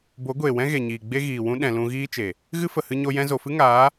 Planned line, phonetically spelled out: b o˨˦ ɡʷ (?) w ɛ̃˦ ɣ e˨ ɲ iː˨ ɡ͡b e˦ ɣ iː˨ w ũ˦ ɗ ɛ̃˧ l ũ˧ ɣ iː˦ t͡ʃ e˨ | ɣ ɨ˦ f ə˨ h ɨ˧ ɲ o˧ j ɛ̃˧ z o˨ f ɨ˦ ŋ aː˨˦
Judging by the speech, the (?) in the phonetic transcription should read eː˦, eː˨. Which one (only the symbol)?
eː˨